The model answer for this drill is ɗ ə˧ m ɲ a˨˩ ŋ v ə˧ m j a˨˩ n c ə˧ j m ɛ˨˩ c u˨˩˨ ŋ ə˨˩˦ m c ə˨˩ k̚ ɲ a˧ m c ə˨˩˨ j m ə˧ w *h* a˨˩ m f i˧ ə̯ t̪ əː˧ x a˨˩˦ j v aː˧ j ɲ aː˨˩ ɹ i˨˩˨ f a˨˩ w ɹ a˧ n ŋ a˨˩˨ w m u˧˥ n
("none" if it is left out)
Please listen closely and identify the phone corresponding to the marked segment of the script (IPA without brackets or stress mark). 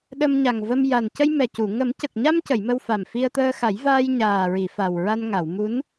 f